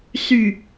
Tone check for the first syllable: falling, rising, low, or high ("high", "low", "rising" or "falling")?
low